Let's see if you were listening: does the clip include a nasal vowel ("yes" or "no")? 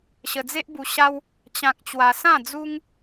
yes